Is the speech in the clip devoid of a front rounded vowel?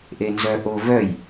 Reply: no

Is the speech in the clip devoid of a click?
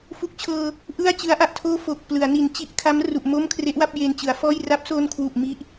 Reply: yes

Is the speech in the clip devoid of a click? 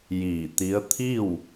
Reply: yes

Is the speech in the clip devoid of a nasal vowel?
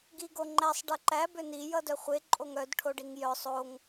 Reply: yes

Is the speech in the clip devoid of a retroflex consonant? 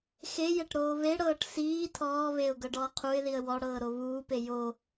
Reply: no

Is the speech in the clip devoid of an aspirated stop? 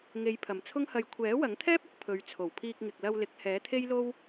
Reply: no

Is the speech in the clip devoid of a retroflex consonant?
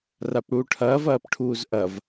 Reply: no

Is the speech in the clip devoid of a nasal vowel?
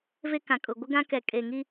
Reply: no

